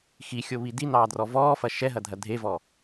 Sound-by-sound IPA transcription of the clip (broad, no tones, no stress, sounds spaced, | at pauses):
x i xʲ o β i d i n ɑː d r ɔ v ɔː f ɐ ʃ ɛ ɦ ɐ dʱ ɐ dʱ e v ɔː